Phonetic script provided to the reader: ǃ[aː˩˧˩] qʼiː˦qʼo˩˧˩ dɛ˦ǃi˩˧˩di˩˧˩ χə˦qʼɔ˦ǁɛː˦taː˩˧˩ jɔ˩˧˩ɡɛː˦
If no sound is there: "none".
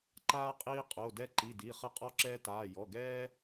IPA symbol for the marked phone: aː˦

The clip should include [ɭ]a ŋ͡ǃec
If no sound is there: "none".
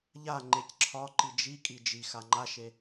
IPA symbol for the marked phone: ʎ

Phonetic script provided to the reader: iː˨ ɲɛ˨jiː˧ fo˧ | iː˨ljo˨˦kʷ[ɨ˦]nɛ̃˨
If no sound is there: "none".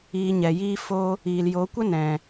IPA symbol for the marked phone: ə˦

